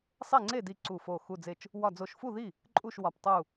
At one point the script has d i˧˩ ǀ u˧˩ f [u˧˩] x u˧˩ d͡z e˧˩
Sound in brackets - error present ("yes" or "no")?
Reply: yes